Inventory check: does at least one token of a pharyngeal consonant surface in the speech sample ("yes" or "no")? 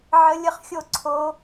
yes